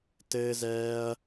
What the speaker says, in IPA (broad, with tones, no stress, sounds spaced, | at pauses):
t ɘː˦ z ɛː˦ ɐ̯